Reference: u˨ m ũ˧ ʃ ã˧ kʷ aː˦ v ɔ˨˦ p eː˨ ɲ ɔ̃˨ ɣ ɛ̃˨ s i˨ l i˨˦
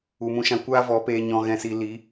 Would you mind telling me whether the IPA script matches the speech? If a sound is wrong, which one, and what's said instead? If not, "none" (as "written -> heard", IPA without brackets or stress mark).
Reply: none